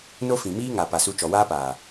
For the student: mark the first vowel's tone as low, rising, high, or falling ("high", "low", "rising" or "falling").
high